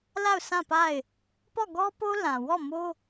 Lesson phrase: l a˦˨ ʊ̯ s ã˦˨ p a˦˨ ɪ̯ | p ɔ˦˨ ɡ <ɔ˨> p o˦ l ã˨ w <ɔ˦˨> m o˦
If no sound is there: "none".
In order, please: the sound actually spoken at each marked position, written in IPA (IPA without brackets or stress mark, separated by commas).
ɔ˦, ɔ˦˨